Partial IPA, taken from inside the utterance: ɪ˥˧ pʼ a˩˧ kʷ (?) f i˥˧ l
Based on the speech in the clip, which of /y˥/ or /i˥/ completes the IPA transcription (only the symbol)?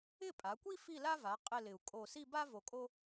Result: i˥